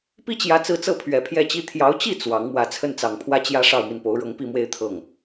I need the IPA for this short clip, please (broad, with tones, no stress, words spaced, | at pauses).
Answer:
pi˥t͡ɕjä˧˥t͡sɹ̩˧˥ t͡sɤ˥˩pʰɥɛ˨˩pʰjɛ˥˩t͡ɕi˥ t̪ʰjɑ˧˥ʊ̯t͡ɕi˥˩ t͡swɑ˧˥ŋ mwä˨˩t͡sʰə˥˩nt͡sɑ˨˩ŋpʰwä˥ t͡ɕjä˥ʂɑ˥˧ʊ̯ mi˥˩npo˧˥ʊ̯ɻɤ˧˥ŋ pi˥˧mwe˥˧ɪ̯ t̪ʰɤ˥˩ŋ